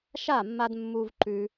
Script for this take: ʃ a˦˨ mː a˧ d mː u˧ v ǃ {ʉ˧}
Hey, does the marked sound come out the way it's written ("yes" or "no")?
yes